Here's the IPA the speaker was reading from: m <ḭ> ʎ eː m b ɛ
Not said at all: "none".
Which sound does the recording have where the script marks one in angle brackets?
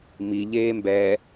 i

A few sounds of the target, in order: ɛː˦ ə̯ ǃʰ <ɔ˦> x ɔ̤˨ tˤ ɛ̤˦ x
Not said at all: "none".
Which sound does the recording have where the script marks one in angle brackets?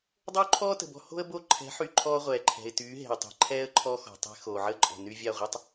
ɔ˦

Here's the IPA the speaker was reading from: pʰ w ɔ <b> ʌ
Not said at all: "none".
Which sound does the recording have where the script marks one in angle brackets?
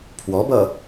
b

